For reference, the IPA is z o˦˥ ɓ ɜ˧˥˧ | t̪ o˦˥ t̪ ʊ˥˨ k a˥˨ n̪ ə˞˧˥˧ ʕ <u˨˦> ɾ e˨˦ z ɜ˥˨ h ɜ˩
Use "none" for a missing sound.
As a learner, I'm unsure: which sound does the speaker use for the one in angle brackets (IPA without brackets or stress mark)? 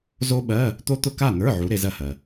u˨˦